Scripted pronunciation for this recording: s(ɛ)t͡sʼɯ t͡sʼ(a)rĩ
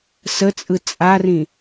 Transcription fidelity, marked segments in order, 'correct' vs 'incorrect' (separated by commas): incorrect, correct